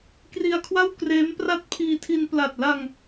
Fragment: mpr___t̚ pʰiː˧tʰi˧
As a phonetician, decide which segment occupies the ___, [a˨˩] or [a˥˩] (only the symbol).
a˥˩